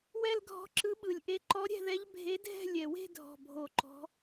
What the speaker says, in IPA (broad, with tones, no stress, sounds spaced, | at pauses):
w ɛ˥˧ l ɡʱ ɔ̤˧˥ ǁ ɯ˧˥ ɓ ɯ˨˩ lʲ ʔ e˧˥ ǃ ɔ˧˥ ɾʲ ɛ̤˥˧ ð ɛ˧˥ ʎ bʱ e˧˥ dʱ ɛ̤˥˧ lʲ ɛ˨˩ w e̤˥˧ dʱ ɔ̤˨˩ bʱ o˨˩ ǃ ɔ̤˧˥